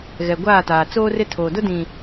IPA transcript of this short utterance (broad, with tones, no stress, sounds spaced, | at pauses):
ɣ ɛ˨ ɡʷ aː˦˨ t aː˨ t͡s oː˦ r ɪ˦ tʰ oː˨ d ʊ˦ d ĩ˨